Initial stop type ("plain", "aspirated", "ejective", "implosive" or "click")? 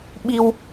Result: implosive